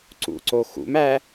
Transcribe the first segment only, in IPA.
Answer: ǀ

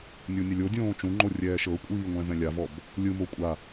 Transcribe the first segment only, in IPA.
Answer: nʲ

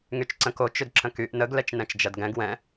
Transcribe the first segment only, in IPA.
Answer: ŋ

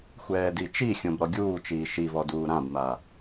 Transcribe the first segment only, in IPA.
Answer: xʷ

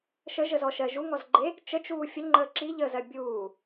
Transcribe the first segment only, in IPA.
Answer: ʃ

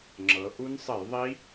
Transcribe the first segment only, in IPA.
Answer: ŋ͡ǁ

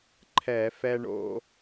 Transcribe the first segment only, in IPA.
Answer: ǃʰ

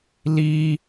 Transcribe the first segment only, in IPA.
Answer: l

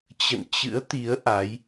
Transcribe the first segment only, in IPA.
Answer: t͡ɕ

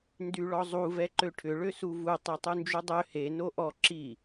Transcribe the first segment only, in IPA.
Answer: n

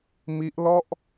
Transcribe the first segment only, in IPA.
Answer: m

